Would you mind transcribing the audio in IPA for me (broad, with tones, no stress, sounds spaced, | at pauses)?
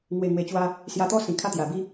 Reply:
ŋ w e˨˩ ŋ w e˨˩ t͡ɕ w a˧ | s j a˧ t̪ ɔ˥˧ s ĩ˨˩ kʰ a˥˧ t̪ j a˨˩ b i˦